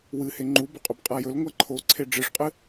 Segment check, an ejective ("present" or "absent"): present